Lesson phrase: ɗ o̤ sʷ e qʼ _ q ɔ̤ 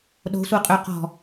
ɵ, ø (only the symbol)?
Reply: ø